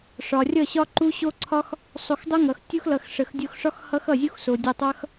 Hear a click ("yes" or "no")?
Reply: yes